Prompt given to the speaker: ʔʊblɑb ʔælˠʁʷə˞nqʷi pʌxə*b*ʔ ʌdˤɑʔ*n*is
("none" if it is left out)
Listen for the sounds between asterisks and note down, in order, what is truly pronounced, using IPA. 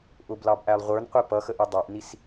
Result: none, n

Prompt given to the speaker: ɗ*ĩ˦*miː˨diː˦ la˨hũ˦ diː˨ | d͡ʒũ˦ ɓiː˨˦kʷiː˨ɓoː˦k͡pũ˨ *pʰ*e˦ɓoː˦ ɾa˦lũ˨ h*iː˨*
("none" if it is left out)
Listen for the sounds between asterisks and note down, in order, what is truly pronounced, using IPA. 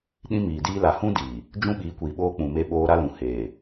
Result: ĩ˦, m, eː˨

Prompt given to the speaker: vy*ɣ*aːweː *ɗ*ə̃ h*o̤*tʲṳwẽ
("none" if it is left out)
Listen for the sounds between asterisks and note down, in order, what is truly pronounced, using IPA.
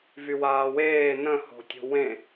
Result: w, n, o̤

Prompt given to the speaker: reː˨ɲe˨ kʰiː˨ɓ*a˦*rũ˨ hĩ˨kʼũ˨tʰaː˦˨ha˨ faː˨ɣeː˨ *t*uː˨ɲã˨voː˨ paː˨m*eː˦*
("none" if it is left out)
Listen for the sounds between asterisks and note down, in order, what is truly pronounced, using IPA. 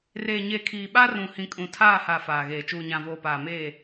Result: a˦, t͡ʃ, eː˦˨

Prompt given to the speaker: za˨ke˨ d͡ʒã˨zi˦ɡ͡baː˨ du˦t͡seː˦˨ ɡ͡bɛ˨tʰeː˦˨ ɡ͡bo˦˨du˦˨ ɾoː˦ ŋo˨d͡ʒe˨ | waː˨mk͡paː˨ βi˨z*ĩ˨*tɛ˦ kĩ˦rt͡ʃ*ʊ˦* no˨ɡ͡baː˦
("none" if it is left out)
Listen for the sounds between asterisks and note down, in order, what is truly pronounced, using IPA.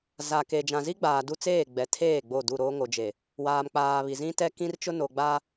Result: ĩ˦, ʊ˦

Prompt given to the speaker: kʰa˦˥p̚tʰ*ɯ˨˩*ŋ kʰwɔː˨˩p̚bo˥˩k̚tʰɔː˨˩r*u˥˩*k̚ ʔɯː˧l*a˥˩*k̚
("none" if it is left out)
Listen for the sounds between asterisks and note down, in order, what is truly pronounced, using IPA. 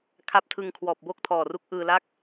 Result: ɯ˧, u˦˥, a˥˩

